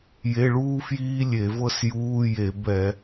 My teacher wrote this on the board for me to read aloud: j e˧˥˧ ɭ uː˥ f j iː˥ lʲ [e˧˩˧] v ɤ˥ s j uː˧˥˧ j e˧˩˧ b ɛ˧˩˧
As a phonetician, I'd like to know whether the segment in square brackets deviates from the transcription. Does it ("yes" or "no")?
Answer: no